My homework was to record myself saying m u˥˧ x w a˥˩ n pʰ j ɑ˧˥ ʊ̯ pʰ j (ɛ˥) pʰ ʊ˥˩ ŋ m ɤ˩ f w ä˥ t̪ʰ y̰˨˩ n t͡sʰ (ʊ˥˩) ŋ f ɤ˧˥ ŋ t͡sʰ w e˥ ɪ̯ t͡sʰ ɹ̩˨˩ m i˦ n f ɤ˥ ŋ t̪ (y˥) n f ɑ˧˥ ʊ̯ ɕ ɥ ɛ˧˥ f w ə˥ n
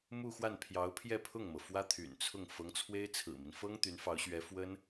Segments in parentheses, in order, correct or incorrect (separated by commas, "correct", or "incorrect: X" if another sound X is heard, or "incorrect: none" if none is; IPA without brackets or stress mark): incorrect: ɛ˥˧, correct, incorrect: y˧˥